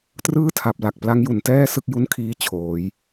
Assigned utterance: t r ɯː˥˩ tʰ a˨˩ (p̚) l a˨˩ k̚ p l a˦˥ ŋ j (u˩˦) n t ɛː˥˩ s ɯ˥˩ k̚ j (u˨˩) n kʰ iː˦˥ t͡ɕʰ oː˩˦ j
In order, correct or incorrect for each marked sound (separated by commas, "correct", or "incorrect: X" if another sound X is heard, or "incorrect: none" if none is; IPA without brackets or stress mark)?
correct, correct, incorrect: u˥˩